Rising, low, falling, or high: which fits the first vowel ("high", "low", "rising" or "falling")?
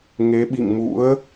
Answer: rising